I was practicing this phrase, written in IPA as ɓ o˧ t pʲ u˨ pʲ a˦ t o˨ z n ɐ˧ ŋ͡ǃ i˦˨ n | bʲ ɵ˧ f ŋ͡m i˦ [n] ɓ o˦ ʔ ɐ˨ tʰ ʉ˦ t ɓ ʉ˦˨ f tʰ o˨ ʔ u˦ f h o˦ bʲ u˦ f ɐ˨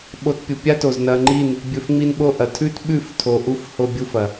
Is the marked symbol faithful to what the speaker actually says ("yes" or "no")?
yes